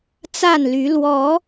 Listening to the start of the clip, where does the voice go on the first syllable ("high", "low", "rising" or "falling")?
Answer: falling